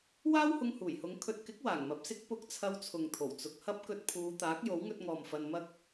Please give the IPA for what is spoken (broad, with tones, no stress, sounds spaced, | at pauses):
w aː˥ w h ʊ˧ ŋ h uː˨˩ j h ʊ˨˧ ŋ kʰ ɵ˨ t̚ k ɪ˨˥ k̚ w aː˨˩ ŋ m ɐ˨ p̚ s ɪ˥ k̚ p ʊ˨˥ k̚ t͡sʰ ɐ˧ w t͡sʰ ʊ˨ ŋ t̪ʰ o˨˩ w t͡s ʊ˨ k̚ h ɐ˥ p̚ k ɵ˧ t̚ pʰ uː˨˧ t̪ aː˨˥ k̚ j o˨˥ w ŋ ɵ˧ t̚ ŋ ɔː˨ m f ɐ˧ n m ɐ˥ k̚